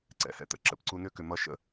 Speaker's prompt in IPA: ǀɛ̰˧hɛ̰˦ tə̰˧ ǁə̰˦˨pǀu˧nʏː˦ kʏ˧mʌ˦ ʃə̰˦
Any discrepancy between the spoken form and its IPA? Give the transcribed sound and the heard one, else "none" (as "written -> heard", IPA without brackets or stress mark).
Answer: none